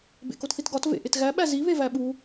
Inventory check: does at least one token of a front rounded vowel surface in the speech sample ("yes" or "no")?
no